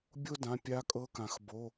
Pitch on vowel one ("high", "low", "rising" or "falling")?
high